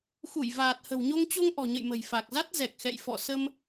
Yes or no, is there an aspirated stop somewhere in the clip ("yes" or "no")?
no